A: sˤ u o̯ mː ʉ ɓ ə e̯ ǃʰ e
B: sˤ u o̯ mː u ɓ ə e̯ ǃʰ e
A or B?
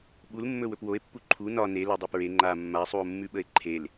A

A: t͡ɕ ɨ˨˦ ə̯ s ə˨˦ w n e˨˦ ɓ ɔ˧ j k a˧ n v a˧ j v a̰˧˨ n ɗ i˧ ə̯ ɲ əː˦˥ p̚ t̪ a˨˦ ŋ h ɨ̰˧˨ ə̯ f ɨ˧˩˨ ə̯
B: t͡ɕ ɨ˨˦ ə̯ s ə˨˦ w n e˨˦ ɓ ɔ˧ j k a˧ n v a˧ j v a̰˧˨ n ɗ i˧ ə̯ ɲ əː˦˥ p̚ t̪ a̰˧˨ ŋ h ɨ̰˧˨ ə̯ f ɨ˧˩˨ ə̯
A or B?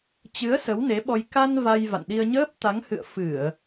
A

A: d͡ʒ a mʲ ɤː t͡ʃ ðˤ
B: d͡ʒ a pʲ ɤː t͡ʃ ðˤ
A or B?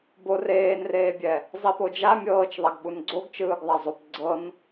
A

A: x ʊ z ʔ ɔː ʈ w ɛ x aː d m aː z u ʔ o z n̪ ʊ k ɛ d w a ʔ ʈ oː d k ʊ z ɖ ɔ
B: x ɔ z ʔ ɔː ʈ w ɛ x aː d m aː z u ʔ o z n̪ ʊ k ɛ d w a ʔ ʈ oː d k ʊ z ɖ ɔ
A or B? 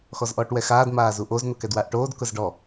B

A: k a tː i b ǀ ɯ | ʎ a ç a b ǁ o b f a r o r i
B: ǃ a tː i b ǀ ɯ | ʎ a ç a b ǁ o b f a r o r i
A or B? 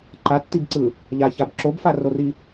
B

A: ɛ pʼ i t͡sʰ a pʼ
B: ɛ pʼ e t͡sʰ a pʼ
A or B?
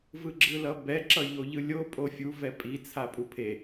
A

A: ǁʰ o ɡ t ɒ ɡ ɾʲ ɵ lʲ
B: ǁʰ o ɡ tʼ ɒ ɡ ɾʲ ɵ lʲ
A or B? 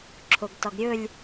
A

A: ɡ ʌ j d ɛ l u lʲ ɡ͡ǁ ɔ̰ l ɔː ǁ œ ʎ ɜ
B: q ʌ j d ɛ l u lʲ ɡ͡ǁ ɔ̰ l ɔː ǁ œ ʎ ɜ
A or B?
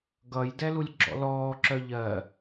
A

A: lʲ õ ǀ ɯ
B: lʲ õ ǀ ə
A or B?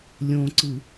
A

